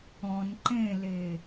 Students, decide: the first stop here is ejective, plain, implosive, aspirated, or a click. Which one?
click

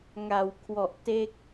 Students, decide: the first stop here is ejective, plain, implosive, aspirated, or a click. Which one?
aspirated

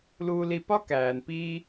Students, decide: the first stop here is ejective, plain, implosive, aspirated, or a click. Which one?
plain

